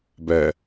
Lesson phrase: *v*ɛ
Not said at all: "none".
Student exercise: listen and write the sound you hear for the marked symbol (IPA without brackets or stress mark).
b